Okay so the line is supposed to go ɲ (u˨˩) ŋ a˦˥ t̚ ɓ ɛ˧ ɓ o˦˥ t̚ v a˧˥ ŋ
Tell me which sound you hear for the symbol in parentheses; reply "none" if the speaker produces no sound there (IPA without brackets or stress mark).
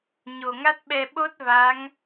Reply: o˨˩